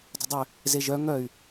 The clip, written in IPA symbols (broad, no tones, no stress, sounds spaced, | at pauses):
dˤ ə̤ dˤ ʏ | z e ʒ œ ŋ œ y̯